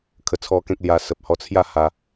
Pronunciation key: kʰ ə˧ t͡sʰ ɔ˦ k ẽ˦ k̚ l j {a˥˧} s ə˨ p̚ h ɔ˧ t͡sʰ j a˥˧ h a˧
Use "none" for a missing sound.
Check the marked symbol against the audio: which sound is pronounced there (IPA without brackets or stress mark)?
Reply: a˧